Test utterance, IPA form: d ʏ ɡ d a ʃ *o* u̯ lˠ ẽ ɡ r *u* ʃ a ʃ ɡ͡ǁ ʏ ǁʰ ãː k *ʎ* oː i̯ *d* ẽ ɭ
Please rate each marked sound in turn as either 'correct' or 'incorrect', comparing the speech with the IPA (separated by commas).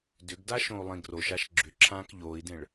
incorrect, incorrect, correct, correct